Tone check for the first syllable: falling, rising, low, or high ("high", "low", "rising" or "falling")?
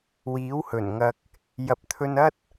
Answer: rising